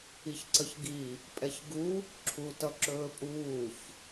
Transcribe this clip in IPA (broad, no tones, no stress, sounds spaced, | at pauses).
i ç ǀ ə ç ɡ i | pʼ ɛ ç ɡ u | ǁʰ u t ʌ ǁ ɵː pʼ uː ç